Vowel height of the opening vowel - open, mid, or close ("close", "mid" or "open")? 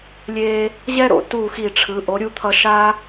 mid